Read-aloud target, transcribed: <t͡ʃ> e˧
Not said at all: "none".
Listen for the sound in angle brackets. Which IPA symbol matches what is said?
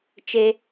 t͡ʃ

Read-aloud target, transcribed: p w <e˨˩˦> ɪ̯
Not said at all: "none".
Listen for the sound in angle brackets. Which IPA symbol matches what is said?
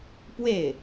e˥˩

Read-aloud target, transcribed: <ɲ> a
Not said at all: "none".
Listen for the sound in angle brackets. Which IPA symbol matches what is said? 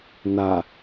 n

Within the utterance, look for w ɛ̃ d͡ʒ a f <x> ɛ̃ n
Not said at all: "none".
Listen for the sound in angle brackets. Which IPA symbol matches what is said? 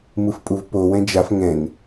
ŋ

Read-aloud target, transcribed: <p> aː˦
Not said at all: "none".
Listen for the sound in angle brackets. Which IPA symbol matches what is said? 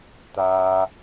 t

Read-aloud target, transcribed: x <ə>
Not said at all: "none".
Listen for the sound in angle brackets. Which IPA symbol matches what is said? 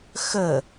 ə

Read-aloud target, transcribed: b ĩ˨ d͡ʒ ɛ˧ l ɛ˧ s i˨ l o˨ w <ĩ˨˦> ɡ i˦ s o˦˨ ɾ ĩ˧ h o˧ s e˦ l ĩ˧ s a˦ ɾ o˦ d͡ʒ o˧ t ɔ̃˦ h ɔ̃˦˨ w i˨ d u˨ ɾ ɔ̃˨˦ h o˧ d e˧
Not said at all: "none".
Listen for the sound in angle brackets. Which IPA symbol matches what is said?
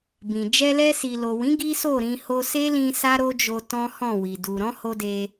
ĩ˨˦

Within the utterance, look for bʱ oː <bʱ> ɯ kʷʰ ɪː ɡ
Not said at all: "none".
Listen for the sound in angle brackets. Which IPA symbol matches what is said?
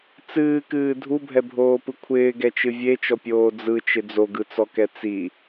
p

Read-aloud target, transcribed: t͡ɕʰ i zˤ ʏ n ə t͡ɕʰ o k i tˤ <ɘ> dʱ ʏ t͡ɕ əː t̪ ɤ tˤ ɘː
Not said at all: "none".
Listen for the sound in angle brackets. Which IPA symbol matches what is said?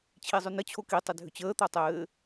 ɘ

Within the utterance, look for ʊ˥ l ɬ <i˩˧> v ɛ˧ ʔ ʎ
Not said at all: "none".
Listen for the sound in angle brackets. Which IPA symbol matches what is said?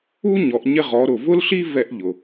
i˥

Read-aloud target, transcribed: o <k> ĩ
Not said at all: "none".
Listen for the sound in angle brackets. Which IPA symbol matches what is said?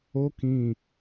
k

